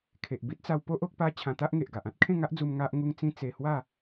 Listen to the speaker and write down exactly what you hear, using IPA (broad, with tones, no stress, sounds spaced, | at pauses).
kʰ e˨ ʔ b i˦ t̚ t͡s a˧ w p o˦ ʔ o˦ k̚ p a˦ t͡ɕʰ ã˧ t̪ a˦ ʔ ŋ e˨ ʔ ɡ a˨ ʔ ã˦ t̚ kʰ ẽ˥˧ ŋ a˦ ʔ d͡z u˧ m ŋ a˦ ʔ ŋ u˦ ŋ t͡s ĩ˦ t͡s e˧ h w a˥˧